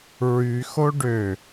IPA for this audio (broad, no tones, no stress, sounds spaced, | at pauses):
ɹ y x o ɖ ø